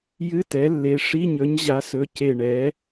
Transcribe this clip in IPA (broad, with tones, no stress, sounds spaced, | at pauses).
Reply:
j ɨ˧˥˧ t ɛ˩˥ lː e˩˧˩ ʂ i˧˥˧ ɲ ɵ˩˥ ɲ ʑ a˩˥ s ɵ˩˧˩ c e˧˩ ɳ ɛ˩˥